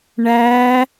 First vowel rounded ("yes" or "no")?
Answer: no